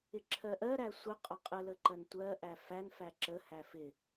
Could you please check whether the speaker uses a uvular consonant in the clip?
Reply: yes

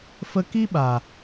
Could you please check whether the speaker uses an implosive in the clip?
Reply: yes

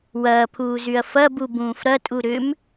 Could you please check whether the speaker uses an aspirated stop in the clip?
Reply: yes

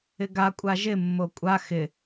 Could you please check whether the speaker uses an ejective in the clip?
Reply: yes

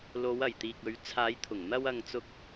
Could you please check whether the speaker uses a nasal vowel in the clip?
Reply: no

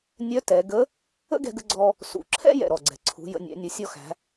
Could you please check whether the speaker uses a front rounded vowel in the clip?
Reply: yes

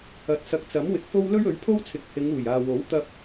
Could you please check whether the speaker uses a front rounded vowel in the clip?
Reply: no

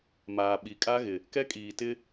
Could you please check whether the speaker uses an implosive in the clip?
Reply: yes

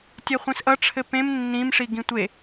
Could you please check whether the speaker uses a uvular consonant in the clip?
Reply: yes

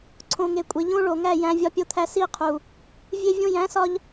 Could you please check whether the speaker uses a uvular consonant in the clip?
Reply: yes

